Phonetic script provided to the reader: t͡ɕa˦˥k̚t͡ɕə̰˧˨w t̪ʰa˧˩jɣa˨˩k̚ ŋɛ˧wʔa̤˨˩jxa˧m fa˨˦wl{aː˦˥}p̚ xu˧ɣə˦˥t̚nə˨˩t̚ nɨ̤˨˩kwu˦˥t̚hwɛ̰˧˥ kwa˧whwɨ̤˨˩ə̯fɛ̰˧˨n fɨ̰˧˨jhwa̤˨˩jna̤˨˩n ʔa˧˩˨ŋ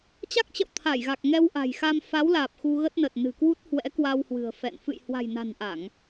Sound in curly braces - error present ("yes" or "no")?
yes